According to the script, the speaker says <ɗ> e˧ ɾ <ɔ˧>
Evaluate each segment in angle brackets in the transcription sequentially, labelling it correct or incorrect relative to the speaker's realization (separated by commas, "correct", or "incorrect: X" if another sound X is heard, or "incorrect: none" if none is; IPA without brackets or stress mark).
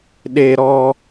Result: correct, correct